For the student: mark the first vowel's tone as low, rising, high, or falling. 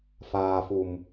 low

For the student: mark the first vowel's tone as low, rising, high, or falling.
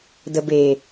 low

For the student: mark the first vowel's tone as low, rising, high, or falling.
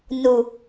low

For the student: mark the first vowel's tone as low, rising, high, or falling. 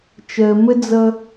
low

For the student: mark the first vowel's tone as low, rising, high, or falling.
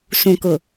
low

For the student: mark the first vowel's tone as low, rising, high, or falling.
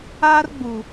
high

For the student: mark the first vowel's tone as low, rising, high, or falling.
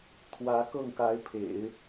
rising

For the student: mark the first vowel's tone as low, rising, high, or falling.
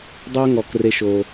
high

